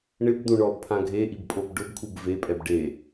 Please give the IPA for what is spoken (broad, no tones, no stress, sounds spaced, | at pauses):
ɳ ɪ b d̪ ũ ɳ ɔ b pʰ ã ɡʱ e ʔ i b pʼ o b ɖ ʊ b kʰ u b v e pʼ ɛ b ɖ e